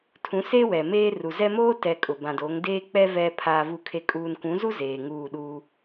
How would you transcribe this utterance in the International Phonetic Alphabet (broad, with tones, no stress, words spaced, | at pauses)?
tʰũ˨˦se˦ wɛ˨meː˦ ru˨zɛ˦ moː˦tɛ˨ kʼʊ˨bã˨doː˨˦ŋ deː˦k͡pɛ˦ vɛ˨ pʰaː˨vu˨kʰe˨ kʼuː˨nkʷũ˨˦zu˦ zeː˨ŋuː˦˨ɗu˦